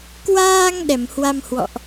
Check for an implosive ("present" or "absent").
present